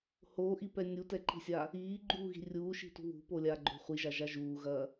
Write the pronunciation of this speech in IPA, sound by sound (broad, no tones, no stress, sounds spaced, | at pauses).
h oː ʔ i p ɛ nʲ u t ɛ ǃ i̤ sʲ a | iː ɡ͡ǃ uː ɣ i̤ rʲ uː ʃ i̤ t ṳ β ṳ p o lʲ aː ɡ͡ǃ o̤ χʷ i ʒ a ʒ a ʒ uː ɣ ɐː